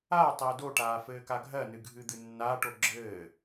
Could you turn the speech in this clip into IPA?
a tˤɜdoʈaː fɘːkaɡʱɜnɨ ɡʱɨd̪ɨnːaːʈo ɡ͡ǁɘː

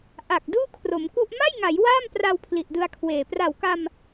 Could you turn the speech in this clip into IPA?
ʔa˨˩k̚ duː˥˩kʰro˩˦mku˥˩ʔ ma˥˩jŋa˩˦j waː˥˩mpra˧w pʰli˨˩ʔdɯ˧a̯kʰweː˨˩ pra˨˩wka˧m

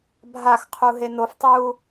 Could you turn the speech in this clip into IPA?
bʱaxqʰu ɦenoftˤuː

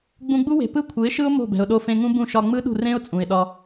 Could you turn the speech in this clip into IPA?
ɡ͡bũ˧ɡ͡bu˦we̤˨ pɯ˦kʷʰɯ˨˦ɪ̯ʃɯ˦ʊ̯ mo̤˦˨bɛ̤˨ʊ̯ɗo˧fẽ˧ ŋũ˦bũ˦˨ ʃɒ˧ŋ͡mɯ˦ɗṳ˦˨ rẽ˦ʊ̯t͡sʼũ˨ɪ̯ɗɒ˧

